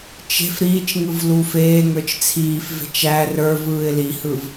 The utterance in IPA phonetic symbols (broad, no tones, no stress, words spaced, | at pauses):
t͡ʃe̤f ɾiːt͡ʃŋɯv luːfeːŋə˞t͡ʃ t͡sʰiːfve̤t͡ʃ æ rə˞vɯːɪ̯ lihɯv